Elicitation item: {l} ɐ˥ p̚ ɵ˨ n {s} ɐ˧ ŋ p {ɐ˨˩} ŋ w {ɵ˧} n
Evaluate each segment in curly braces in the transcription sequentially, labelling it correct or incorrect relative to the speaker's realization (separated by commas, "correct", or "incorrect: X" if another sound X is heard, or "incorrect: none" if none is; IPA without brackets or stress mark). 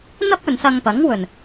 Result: incorrect: n̪, correct, incorrect: ɐ˨˥, correct